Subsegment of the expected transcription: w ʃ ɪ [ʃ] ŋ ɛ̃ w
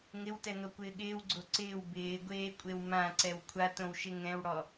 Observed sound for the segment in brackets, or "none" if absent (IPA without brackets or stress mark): none